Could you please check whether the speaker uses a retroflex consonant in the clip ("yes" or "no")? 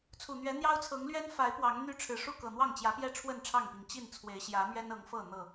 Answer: yes